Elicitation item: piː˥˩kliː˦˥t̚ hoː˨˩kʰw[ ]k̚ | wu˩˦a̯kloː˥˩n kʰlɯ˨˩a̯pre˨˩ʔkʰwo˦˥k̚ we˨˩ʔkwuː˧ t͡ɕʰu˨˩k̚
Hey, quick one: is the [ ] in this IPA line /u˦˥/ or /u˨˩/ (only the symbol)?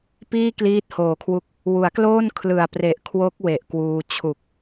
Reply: u˦˥